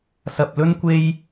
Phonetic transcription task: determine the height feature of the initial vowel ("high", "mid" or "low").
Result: low